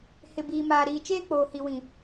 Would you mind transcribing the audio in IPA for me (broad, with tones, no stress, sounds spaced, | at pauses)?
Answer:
h ɪ˨ b iː˨ m aː˨ ɾ iː˨ t͡ʃ eː˦ k͡p oː˨ h i˨ w ĩ˨